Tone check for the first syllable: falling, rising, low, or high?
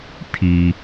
high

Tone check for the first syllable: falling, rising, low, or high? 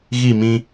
falling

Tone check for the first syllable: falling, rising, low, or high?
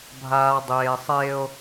low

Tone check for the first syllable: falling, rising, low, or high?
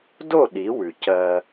falling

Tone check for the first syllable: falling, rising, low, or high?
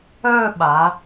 falling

